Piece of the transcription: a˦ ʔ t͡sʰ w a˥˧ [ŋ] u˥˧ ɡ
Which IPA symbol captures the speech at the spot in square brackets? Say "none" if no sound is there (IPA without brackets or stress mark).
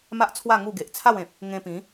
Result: ŋ